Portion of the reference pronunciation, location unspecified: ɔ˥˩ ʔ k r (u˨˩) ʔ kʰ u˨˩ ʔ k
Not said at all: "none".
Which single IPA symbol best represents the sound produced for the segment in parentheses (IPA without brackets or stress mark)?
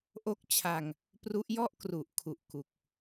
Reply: u˨˩